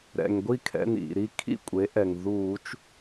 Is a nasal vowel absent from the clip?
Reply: yes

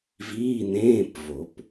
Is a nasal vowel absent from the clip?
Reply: no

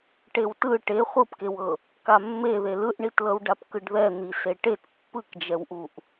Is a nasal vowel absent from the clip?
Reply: yes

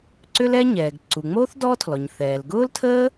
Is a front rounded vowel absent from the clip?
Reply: no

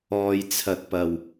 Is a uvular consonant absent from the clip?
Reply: yes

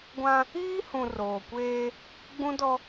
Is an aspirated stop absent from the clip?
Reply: yes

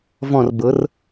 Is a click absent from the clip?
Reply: yes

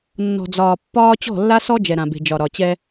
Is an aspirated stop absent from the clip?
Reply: yes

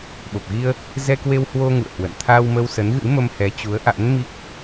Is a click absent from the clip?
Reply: yes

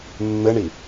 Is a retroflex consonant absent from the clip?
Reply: no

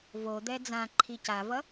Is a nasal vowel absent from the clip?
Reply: no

